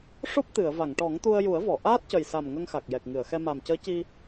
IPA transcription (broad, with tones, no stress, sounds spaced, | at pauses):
ʂ o˦˥ p̚ t̪ ɨ˨˩˨ ə̯ v a˨˩˨ ŋ ʈ ɔ˨˩˦ ŋ t̪ u˧ ə̯ j u˨˩˦ ə̯ v ɔ˨˩˨ ʔ aː˦˥ t̚ c ə˨˩ j s a˨˩ m ŋ ə˧ ŋ x a˨˩ k̚ j ɛ˨˩ k̚ ŋ ɨ˨˩˨ ə̯ x ɛ˧ m a˨˩ m c əː˧˥ c i˧